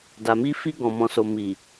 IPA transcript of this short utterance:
da˨mi˧fi˧ ɡɔ̃˨ mɔ̃˨so˨ mi˨

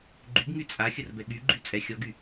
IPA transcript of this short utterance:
ɡ͡ǃyɡŋy t͡sʼaxʲərbɛ ɠy ɡ͡ǃyt͡sʼɛ xʲɔɡy

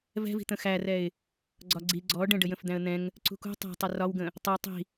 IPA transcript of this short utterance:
vɛ̤vi̤ t̪ə̃xærɛɪ̯ | ɡ͡ǀɒɡ͡ǀi ɡ͡ǀɔ ɖə̃ɖə jə̃fd̪æ̃ə̯n̪ɛ̃ŋ | ǀṳkṳ tˤæ̤tˤʊ rɒwɡə̃ | tˤʊə̯ tˤi̤

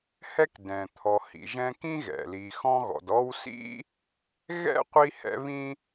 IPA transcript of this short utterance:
hɛ˦k dɛ̃˩ t̪ʰɔ˨hḭ˨ʒɛ̃˦kĩ˥ ɣɛ̰˩li˨xɔ̃˦ɣɔ̰˨d ɔ˦wsḭ˥ | ɣɛ̰˥qʷi˦hɛ̰˦ βĩ˦

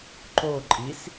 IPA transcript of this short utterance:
ǃo ǃʼis

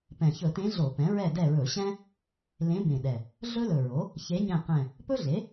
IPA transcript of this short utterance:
pɛ̃˨˩ çɵ˧˩˧tẽ˧˥ ɮo˧˩˧pɛ̃˩˥ ɹɛ˦˨dɛ˦˨ɹɵ˧˩˧ɕɛ̃˥ | lẽ˧˥bẽ˨˩ɗɛ˨˩ | ɮɵ˥lɵ˨˩ɹo˩˥ | çe˧˥ɲɛ̃˦˨qɛ̃˦˨ | pɵ˥ɮe˩˥

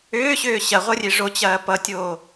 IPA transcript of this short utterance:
ʏːɕʏː ɕɐʁʷʌrʲe ʐot͡ɕɐː pʌtʲoː

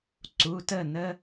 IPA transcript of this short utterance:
ǀu˩˧˩tə˥˨ nə˦

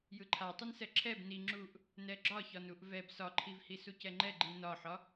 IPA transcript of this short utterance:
jɯǃʰatˤɯnsɛ ǁʰɛb ni ŋ͡ǁuʔ | nɛɡ͡ǁɒçɒn uʔvɛb sɒǃʰivhi sucɛŋ͡ǃɛ ɡ͡ǃinɒħɒ

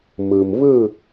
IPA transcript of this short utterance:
mɯ˩mβɯ˥˨

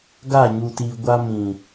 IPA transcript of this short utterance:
ɡa˦˨ɲu˨ti˨ɡʷa˦ mĩ˨

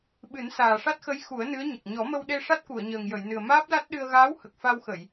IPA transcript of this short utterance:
ɓɨ˨˩˦nsaː˨˩ʂa˦˥t̚xə˧˥j xu˨˩˦ə̯ nɨ˧˥ə̯ɲə˨˩k̚ ɲɔ˨˩˦mə˧wɗe˧ ʂa˦˥t̚ku˨˩˨ə̯ɲəː˨˩ŋ jə˨˩˨jnɨ˨˩ə̯ maː˦˥p̚la˦˥t̚ ɗɨ˧ə̯ ɣaː˧˥whə˨˩k̚ fa˧wxə˨˩˨j

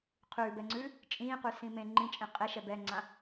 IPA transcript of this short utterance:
qʰʉːbɛŋ͡ǀʉː | t͡ʃʼĩːqʉsĩ mẽ ŋ͡ǃĩt͡ʃʼẽ qʼeʃɛ bɛŋ͡ǀã

